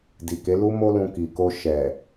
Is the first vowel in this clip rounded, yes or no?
no